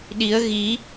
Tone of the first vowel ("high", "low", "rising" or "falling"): rising